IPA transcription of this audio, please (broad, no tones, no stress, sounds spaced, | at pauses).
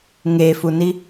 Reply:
ŋ e f u n i